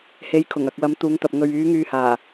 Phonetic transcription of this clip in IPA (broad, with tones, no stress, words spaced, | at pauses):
he˨˧jkʰʊ˨˩ŋ ɐ˨k̚wɐ˨˥mt̪uː˨˧ŋt̪ɐ˨p̚ ŋɵ˨ɥyː˨˧ ŋyː˨haː˨˩